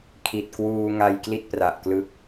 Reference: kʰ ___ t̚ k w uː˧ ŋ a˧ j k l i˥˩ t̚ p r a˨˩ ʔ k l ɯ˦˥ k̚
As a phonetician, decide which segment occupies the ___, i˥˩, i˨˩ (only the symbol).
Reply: i˨˩